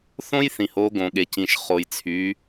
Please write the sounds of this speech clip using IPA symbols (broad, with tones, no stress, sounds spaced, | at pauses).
θ õ˥ j θ ĩ˩ h o˩˧ ɡ õ˩ ɠ e˩ c ĩ˩ ʃ χ o˩ j t͡sʰ y˩˧